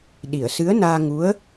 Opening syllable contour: low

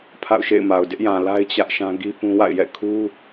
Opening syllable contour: falling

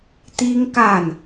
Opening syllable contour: high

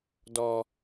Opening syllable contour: low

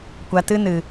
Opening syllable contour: low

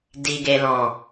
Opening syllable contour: low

